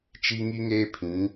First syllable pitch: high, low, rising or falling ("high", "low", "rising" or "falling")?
high